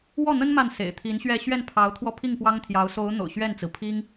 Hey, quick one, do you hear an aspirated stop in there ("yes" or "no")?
yes